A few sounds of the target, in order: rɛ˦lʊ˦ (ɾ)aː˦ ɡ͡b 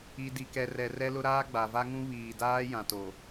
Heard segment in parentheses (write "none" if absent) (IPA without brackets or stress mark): ɾ